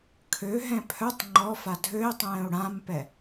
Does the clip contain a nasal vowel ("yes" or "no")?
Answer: yes